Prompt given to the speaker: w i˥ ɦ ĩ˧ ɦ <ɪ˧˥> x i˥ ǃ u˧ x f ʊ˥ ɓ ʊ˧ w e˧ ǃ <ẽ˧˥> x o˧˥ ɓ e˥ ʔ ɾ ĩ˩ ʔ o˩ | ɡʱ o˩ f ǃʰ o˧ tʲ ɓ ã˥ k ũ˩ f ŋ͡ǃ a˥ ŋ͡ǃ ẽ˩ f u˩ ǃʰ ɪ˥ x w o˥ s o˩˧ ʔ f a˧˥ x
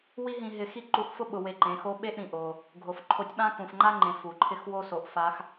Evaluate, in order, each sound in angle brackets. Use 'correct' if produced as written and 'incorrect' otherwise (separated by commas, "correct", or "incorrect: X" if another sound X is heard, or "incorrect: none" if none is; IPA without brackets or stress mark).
incorrect: ɪ˧, incorrect: ẽ˩˧